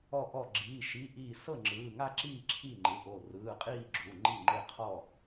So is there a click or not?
yes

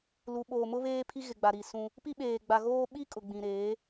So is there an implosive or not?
yes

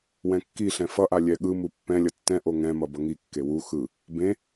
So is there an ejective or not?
no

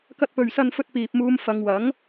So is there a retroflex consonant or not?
no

